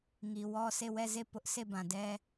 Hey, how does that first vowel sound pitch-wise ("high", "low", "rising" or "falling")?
low